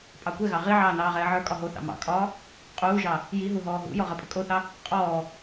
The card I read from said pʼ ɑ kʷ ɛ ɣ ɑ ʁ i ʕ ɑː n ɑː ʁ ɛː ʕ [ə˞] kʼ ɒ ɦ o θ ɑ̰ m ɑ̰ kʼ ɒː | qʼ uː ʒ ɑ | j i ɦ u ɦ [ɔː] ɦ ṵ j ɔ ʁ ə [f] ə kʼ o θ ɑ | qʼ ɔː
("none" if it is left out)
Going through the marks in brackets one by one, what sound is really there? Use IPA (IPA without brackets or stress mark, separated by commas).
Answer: ə˞, ɔː, pʼ